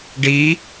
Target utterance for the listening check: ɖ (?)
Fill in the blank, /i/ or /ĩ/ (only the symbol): i